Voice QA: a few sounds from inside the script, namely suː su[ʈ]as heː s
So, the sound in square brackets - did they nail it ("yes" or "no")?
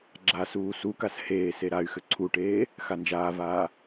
no